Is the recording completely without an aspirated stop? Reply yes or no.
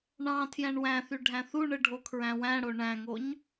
no